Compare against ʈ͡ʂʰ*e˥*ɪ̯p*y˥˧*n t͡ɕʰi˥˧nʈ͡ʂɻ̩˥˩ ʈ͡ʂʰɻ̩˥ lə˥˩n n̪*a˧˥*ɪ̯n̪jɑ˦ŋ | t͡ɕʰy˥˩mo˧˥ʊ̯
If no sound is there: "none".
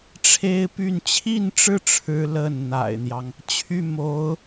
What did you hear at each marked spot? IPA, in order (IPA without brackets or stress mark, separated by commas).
e˥, y˥˧, a̰˨˩